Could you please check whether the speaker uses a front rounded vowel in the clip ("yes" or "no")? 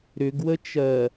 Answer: yes